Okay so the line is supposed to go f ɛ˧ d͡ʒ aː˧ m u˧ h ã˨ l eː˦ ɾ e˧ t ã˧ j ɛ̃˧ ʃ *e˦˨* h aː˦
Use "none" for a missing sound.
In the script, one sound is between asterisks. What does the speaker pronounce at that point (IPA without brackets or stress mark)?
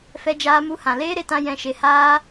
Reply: e˧